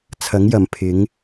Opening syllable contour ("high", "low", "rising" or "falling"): rising